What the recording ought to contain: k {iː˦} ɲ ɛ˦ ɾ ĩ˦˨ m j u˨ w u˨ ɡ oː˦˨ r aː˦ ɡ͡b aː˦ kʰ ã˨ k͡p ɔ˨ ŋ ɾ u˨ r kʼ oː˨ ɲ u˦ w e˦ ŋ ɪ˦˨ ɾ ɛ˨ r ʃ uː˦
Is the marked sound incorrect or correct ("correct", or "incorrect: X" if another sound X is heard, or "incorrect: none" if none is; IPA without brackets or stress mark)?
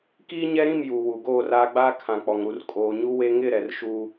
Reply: correct